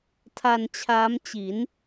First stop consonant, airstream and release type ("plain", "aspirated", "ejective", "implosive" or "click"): aspirated